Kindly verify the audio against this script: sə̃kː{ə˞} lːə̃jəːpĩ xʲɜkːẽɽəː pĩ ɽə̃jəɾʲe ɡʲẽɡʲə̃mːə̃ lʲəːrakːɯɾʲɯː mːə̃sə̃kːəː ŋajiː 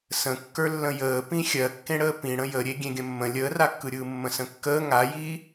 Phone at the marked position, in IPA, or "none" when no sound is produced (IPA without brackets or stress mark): ə˞